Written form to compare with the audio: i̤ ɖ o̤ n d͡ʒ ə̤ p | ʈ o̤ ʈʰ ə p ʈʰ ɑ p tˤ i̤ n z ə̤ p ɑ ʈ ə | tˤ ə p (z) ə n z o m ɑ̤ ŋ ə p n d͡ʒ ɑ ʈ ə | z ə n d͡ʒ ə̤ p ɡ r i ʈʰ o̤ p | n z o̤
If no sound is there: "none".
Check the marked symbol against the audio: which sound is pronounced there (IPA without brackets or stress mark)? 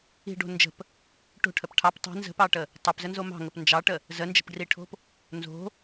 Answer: z